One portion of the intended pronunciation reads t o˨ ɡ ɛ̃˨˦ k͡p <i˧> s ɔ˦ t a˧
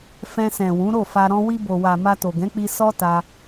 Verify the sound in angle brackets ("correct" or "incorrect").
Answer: correct